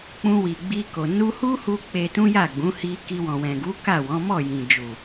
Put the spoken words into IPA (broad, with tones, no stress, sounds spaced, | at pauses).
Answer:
k͡p ũ˧ w i˨ ɡ͡b i˧ k o˨ n u˧ h u˦ h u˧ k͡p e˧ t ũ˦ j a˦˨ ɡ͡b ũ˨˦ h i˧ k i˧ w ɔ̃˨ w ɛ̃˨ ɡ u˨˦ k a˦˨ w ɔ̃˨˦ m ɔ˦˨ j ĩ˨ d͡ʒ u˨